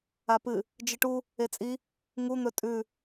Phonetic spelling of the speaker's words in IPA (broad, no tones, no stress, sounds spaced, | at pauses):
a p ɨ | d͡ʒ ɨ ʈ u | e t͡sʼ i | ŋ u n̪ ɵ tʼ ʉ